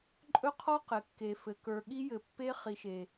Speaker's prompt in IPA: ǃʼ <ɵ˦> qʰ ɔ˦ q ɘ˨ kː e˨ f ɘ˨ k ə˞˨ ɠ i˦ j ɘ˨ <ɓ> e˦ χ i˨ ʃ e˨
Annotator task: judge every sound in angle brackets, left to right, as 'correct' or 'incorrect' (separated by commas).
correct, incorrect